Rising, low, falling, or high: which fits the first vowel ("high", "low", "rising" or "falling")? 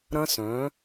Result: high